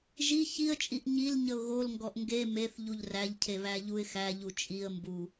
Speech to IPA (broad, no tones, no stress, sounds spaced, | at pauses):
ʒ i ç i ə̯ t͡ʃʼ i ʔ ɲ i l ɲ ə ʊ̯ ɣ o l ŋ ɡ ɔ ʔ ŋ ɡ e m e θ ʎ u ʎ r æ ʎ cʰ e β æ ʎ u ɪ̯ x æ ʎ u t͡ʃʼ i ə̯ m b u